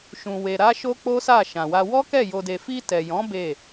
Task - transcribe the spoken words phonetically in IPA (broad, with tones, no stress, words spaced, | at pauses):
ʃũ˧we˧ ɾa˦ʃo˦ k͡po˦sa˦˨ ʃã˨wa˧ wɔ˦kɛ˦˨ jo˧de˧ fi˧tɛ˨jɔ̃˨˦ be˦˨